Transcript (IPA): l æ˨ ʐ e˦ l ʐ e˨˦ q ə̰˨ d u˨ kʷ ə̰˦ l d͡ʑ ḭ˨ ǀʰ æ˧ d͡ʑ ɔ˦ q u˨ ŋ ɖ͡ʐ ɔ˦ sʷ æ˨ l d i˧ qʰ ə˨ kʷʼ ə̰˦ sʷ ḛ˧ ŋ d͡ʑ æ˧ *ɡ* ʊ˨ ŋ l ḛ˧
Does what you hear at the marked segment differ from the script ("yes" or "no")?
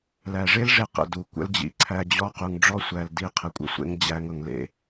yes